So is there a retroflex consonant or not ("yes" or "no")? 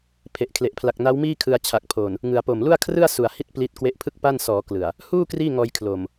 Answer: no